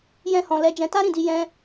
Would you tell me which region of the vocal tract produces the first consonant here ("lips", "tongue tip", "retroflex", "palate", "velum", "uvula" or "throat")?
palate